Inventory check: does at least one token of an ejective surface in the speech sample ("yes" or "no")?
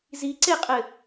yes